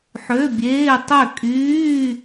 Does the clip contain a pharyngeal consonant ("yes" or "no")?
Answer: yes